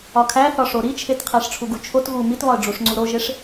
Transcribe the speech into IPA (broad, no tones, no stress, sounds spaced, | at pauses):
ɒ kʰ æ θ ɒ ʂ o ɾ i t͡ʃʰ e t qʰ æ ʂ ʈ͡ʂʰ u ɡ u t͡ʃʰ o t ɣ u m i t β ɒ ə̯ ɖ͡ʐ u ʂ ŋ͡ǀ u ɾ o ʒ e ʂ